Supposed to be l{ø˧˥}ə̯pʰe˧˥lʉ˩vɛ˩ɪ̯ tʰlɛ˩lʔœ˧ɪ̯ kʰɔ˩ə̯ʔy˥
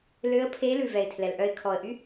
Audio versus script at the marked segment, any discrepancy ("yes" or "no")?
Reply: no